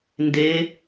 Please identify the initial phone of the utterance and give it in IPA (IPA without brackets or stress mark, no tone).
n